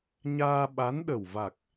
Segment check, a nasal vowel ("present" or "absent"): absent